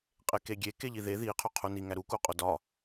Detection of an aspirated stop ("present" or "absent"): present